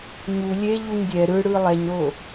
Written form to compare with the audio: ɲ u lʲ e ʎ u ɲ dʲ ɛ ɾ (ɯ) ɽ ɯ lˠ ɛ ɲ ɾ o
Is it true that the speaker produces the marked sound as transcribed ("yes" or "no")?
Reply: yes